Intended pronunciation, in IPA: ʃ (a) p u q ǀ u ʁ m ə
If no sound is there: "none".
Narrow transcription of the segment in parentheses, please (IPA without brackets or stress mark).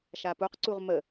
a